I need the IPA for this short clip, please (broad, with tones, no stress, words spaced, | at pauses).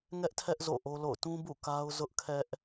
ŋɛ˦ʔtʰɛ˦ʔ zo̰˦˨ʔo˦lo̰˦˨ʊ̯ tũ˦bṵ˦˨ ka˦ʊ̯ zʊ˦ʔkʰɛ˦ʔ